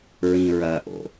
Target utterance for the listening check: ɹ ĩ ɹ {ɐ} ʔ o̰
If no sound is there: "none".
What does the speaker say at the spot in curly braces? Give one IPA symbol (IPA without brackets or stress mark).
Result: ɐ